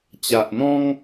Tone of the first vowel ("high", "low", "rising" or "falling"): low